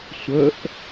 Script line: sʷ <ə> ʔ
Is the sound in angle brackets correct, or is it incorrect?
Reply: correct